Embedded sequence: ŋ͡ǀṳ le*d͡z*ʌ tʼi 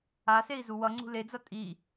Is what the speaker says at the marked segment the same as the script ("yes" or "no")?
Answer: yes